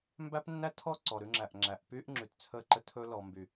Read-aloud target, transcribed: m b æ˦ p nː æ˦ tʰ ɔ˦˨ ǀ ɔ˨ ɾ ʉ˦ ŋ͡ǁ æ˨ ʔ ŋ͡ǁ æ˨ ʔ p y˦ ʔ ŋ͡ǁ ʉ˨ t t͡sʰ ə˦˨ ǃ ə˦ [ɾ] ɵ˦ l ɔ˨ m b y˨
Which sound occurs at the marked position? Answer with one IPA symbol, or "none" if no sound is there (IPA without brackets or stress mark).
tʰ